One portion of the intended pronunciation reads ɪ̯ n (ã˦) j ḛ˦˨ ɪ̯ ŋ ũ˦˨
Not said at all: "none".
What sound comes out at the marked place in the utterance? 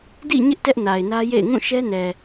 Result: ä˦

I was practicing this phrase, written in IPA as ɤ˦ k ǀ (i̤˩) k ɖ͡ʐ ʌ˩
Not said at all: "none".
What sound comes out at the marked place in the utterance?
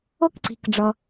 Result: i̤˩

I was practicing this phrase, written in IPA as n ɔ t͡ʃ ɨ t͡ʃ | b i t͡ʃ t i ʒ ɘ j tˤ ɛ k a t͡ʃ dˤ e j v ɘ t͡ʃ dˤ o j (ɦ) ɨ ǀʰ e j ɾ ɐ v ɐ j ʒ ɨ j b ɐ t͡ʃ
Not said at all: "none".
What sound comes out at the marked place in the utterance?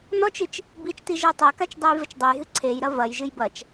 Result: ɦ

